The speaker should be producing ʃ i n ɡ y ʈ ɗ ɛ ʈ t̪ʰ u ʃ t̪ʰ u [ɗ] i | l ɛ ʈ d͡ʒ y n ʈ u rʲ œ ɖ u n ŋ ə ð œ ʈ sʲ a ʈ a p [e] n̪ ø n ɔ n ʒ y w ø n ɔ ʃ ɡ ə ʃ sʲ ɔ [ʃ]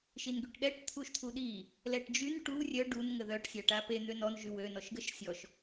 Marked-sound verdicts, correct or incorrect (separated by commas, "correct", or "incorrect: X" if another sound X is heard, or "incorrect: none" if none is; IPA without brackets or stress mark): correct, correct, correct